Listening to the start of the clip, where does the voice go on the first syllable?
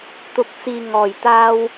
low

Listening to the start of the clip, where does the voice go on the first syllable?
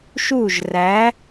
falling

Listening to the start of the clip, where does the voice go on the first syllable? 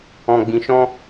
low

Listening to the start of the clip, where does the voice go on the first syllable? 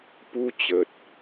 high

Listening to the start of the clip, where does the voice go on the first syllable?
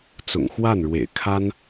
low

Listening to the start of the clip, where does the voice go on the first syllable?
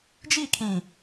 falling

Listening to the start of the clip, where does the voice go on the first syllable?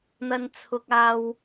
low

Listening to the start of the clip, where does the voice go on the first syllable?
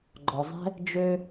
low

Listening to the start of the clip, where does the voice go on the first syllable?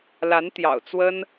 rising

